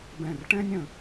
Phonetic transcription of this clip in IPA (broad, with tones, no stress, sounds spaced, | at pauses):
b ɛ̃˧˩ r ʈ ɛ̃˥ nʲ ə̃˧